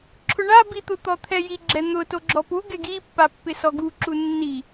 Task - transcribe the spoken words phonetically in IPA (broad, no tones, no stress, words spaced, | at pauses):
ǁʰʊɳa bit̪ʊ t̪ɔt̪ʰɛji ɡ͡ǁɛn̪ʊ toɡ͡ǁɔpu ɡɛɡipːa pːɪsɔɡuǁu nːi